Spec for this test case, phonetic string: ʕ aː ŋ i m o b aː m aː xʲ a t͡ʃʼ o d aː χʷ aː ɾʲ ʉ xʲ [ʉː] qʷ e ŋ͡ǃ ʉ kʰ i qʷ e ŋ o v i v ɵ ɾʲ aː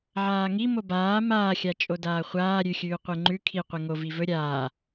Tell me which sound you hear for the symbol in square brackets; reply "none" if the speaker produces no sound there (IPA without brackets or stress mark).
ʉː